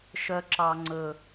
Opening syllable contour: high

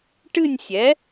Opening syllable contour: falling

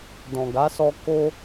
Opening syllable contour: low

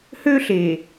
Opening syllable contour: high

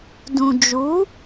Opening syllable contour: low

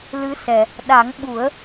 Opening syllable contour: rising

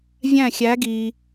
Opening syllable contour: falling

